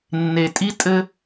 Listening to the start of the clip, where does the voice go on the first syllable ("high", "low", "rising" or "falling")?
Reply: low